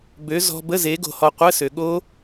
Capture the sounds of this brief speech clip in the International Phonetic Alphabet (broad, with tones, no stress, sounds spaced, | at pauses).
b ø˨˦ z ɔ̤˨ b ə˧˥˧ z e˨˦ ɡ o̤˨ h ɔ˨ qʷ ə˧˥˧ s ø˨ ɠ o˦˥